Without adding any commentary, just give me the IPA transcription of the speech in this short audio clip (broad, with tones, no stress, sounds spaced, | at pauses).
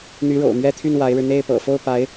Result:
n̪ y˧˥ ɻ o̰˨˩ ʊ̯ m ɥ ɛ˥ t̪ʰ y˥˩ n w a˧˥ ɪ̯ ɻ ɻ̩˧ n̪ e˥˩ ɪ̯ p ɤ̰˨˩ f o˥˩ ʊ̯ p a˧˥ ɪ̯